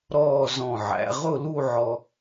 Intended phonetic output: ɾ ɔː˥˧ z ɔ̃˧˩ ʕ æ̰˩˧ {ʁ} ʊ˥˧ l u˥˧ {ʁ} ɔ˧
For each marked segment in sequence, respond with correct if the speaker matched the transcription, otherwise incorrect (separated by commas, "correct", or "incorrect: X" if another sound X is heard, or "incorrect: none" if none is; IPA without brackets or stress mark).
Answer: correct, incorrect: ʕ